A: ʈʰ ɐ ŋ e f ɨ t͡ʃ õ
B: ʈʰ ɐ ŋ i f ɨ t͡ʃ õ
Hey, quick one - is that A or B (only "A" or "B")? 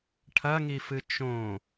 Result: B